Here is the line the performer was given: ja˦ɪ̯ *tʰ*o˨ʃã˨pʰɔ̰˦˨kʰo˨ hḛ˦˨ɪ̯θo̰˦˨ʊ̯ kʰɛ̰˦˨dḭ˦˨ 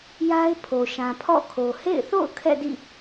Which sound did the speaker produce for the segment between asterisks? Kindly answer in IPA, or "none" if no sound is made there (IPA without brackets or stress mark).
pʰ